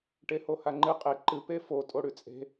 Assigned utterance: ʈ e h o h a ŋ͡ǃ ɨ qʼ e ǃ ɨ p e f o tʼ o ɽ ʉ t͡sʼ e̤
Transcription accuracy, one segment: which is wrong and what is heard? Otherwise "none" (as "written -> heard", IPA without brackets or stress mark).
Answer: none